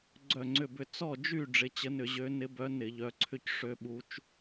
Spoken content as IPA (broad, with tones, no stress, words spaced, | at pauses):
ɡ͡ǀœ˦˨ŋ͡ǀʏ˦˨bʏ˦˨ t͡sɔ˦˨d͡ʒy˦˨ ɖ͡ʐɪ˨˦t͡ɕə˨˦nʏ˧˩˧ ʑø˨˦nɪ˨˦ bœ˨˦ nɪ˧˩˧ʎœ˨˦ǀʰʏ˦˨c ʂø˨˦ɓu˨˦t͡ʃ